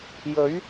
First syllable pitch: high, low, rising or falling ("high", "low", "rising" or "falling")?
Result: rising